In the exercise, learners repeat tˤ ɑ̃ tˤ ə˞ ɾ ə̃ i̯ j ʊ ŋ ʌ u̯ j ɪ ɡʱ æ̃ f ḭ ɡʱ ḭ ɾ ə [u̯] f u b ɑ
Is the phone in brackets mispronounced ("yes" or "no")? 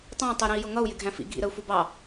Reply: no